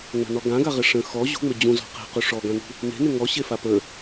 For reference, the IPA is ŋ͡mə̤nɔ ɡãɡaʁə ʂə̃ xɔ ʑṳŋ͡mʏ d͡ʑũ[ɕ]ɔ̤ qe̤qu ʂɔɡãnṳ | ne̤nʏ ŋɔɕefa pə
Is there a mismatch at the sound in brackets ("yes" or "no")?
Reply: yes